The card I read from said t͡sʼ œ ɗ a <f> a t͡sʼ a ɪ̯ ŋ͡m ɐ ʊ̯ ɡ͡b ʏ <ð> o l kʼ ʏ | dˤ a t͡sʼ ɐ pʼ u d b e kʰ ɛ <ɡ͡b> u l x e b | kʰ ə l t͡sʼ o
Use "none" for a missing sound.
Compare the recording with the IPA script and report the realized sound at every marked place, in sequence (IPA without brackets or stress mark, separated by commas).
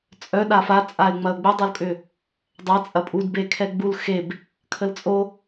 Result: f, dˤ, ɡ͡b